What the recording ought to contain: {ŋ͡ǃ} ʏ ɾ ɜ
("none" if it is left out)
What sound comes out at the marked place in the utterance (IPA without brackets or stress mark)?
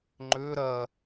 ŋ͡ǃ